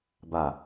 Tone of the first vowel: low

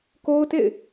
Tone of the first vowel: high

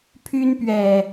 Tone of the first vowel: high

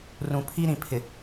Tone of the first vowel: low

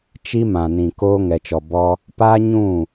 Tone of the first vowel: high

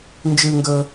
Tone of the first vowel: high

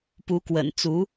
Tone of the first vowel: rising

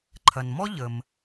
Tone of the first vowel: low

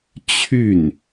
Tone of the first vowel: falling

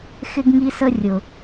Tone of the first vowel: high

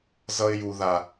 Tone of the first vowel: high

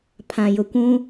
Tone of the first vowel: low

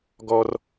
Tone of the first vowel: low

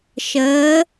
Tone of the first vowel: rising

